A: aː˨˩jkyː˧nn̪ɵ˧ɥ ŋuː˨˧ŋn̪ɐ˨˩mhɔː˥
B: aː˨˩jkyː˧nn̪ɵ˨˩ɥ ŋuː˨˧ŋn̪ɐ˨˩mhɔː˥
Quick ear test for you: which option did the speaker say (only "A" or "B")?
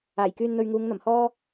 A